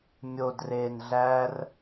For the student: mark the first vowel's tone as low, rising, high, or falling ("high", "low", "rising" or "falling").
low